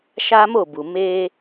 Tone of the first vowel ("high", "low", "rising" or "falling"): high